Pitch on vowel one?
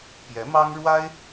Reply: rising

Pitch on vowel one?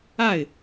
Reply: falling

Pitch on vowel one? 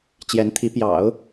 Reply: rising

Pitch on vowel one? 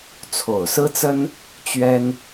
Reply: low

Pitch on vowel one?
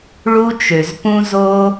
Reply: high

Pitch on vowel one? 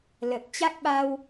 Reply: low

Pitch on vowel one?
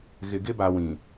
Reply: low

